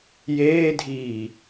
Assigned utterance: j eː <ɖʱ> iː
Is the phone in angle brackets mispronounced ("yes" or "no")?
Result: yes